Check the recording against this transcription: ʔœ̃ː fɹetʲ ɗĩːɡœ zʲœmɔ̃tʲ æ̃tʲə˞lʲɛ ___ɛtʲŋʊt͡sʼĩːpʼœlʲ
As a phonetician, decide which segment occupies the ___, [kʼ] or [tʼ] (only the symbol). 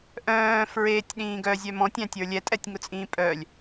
tʼ